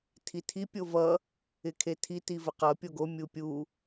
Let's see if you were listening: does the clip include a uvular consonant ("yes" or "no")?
yes